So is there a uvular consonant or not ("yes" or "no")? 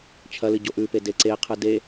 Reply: yes